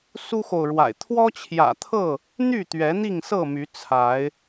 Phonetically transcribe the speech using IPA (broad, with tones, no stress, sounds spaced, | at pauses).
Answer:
s u˦ x o˨ ʊ̯ ɻ w a̰˨˩ ɪ̯ t̪ʰ w ɔ˦ t͡ɕʰ j ä̰˨˩ t̪ʰ ɤ˥˨ | n̪ y˥˨ t̪ ɥ ɛ˨˦ n̪ i˥˨ ŋ s ɤ˥˨ m y˨˦ t͡sʰ a˨˦ ɪ̯